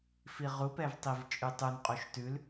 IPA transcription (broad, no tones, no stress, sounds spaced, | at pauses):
f i ʁ u p ɛ v tˤ i v t͡ʃʼ ʉ tˤ u n qʼ u ʃ t ʉ l